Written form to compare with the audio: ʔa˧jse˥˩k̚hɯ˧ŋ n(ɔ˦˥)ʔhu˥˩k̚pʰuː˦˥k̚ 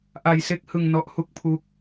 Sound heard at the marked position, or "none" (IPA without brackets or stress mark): ɔ˦˥